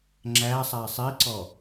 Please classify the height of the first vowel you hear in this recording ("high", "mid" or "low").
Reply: low